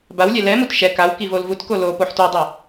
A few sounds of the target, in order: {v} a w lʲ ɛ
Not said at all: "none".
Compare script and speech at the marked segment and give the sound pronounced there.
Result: b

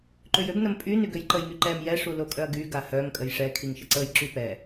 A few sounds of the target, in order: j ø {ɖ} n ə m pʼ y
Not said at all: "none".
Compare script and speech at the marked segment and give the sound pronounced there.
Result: b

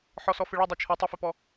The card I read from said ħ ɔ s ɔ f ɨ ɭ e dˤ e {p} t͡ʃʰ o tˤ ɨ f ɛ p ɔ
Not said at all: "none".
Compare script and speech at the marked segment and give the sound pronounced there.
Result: none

